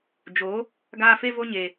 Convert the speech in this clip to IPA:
d͡ʒ o˨˦ | ɡ aː˧ f e˧ v o˧ ɲ e˨

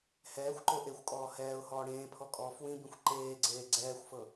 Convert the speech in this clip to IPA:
h ɛː xʷ ǃ o ʔ e xʷ kʼ ɔː h ɛː ʊ̯ h ɔː ɽ ẽː pʰ ɔ kʼ ɔː f w ĩ b ĩ xʷ ǃ eː ɡ͡ǀ eː ɡ͡ǀ ɛː xʷ f ɤ

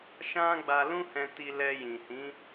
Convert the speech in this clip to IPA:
ʃ ã˦ ɡ͡b a˧ l ũ˦ h ɛ̃˧ t i˧ l ɛ˧ j ĩ˨ h ĩ˨˦

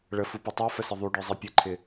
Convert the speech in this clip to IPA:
ɭ ə f u p ɛ tˤ ɪ ʊ̯ f ə s ɪ ðˤ u ɖ ə˞ zˤ ɛ pʲ ə ǃʰ ɪ

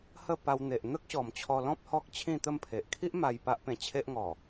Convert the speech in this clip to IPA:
h ə˥˧ p a˧ w n̪ e˨ ʔ n̪ ə˦ k̚ ɕ ɔ˨˩ m t͡ɕʰ ɔ˧ l ɔ̃˦ p̚ h ɔ˦ k̚ t͡ɕʰ ĩ˥˧ t̪ ə˥˧ m pʰ e˨ ʔ kʰ i˦ ʔ m a˧ j p a˦ ʔ p ẽ˧ t͡ɕʰ e˦ ʔ ŋ ɔ˨˩

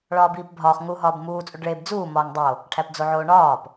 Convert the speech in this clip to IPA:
ɭ ɒː b iː p bʱ ɒː χ ŋ u ɦ ɒː b m uː t͡sʼ u ɖ ɭ e b d͡z uː m ɒː ŋ dˤ o | ʈʰ æ p d͡z o ʕ oː ɳ ɒː p

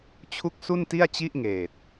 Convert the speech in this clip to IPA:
t͡ɕʰ u˦˥ k̚ s u˥˩ n t i˥˩ a̯ t͡ɕ i˥˩ ʔ ŋ eː˨˩ t̚

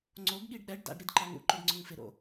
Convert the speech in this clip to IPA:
ŋ͡ǀ o ɡ ɠ i ɖ ɗ ɛ ɖ d a̰ ɖ ɾ i d ǃ a ŋ ṵ ǃ ʊ ɖ ŋ͡ǀ ʊ ŋ f ɪ ɾ o̰

